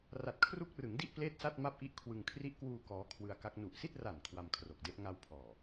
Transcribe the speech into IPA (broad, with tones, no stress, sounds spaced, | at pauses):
r a˨˩ t̚ kʰ r u˦˥ k̚ r ɯ˩˦ ŋ d i˥˩ ʔ p l eː˥˩ t̚ s a˥˩ t̚ m a˥˩ p̚ ʔ i˥˩ ʔ kʰ w ɯ˧ ŋ kʰ r i˦˥ ʔ k w uː˧ k ɔː˦˥ kʰ w ɯ˧ a̯ k a˦˥ k̚ n u˨˩ ʔ s i˥˩ t̚ r a˨˩ n kʰ w a˧ m kʰ r o˨˩ k̚ d e˦˥ ʔ ŋ a˧ w pʰ ɔː˨˩